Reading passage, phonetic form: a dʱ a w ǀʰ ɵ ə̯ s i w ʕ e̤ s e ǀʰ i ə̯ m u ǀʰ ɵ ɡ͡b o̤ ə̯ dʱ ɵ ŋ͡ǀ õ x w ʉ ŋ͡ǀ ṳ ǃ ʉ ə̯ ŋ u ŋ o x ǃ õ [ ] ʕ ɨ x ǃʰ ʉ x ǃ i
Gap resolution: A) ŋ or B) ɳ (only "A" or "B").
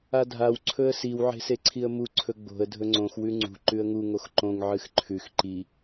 A